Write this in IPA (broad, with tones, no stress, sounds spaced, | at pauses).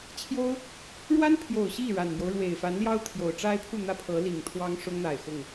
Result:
t͡ɕʰ j o˥ ʊ̯ | ɻ w a˥ n pʰ j o˨˩ ʊ̯ ɕ i˥˩ ɻ a˨˩ n m j o˦ ʊ̯ ɻ w e˨˩ ɪ̯ f a˧˥ n l j ɑ˥ ʊ̯ t̪ʰ j o˨˩ ʊ̯ ʈ͡ʂ a˥ ɪ̯ pʰ u˥˩ n̪ ä˥ pʰ ɤ˧˥ l i˨˩ ŋ t̪ʰ w ɑ˥ ŋ ʂ ʊ˥ ŋ n̪ a˨˩ ɪ̯ x ʊ˥˩ ŋ